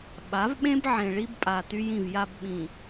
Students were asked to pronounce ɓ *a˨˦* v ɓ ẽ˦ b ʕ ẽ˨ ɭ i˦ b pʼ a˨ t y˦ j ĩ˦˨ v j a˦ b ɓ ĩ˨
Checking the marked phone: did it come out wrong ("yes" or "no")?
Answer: no